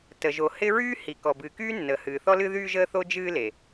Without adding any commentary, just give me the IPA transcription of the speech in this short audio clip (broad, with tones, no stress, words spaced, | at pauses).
tə˩ʒo˩ hɪ˦ ɹyː˦hi˩ kɔ˩bɨː˩kyː˦ nːəː˩hɨː˩θɔ˦lɨ˦ ðyː˦ʒəː˦θo˦ d͡ʒɨː˦le˩